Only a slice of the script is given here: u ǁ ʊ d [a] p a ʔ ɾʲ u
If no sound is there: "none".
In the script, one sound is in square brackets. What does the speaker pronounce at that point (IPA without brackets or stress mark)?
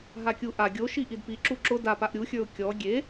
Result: a